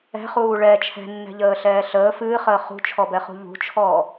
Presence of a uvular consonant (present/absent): present